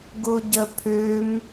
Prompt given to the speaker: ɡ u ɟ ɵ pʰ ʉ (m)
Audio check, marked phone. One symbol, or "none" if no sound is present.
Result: m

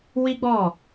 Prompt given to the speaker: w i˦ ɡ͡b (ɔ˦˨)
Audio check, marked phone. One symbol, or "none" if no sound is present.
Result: ɔ˦˨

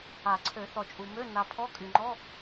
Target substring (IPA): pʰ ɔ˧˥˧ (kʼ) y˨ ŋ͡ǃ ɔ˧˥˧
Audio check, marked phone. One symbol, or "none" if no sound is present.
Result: kʼ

